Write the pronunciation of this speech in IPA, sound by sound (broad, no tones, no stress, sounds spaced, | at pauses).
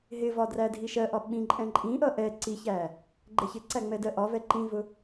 ɦ ɪ v ɒ d r æ dʱ i ʃ ɜ ʔ ɒ ɓ ĩ ǃʼ ɛ̃ ǃʼ ĩ ʔ ʌ ʔ ɛ ǀ i ç æ | ɡ͡ǃ ɛ ç ɪ ǀ æ ŋ͡m ɛ d ɜ ʔ ɒ v ɛ ǃ ĩ v ʊ